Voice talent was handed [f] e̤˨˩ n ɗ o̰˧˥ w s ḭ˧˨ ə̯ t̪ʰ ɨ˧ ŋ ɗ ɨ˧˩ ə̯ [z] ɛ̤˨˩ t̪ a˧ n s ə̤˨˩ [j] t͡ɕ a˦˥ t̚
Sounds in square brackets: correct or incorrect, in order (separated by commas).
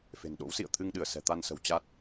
correct, incorrect, incorrect